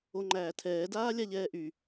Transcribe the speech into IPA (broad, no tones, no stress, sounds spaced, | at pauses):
o ŋ͡ǃ æː tʰ ɛː d aː lʲ a ʎ ɛː ʔ y